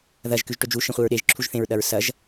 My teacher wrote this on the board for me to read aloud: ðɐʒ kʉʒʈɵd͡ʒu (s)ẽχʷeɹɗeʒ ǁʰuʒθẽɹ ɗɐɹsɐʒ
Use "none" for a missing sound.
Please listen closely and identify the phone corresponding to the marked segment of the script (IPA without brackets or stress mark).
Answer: ʃ